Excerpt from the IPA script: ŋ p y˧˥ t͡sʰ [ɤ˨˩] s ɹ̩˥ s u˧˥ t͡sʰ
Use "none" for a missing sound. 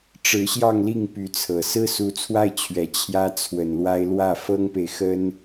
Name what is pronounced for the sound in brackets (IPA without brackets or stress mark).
ɤ˨˩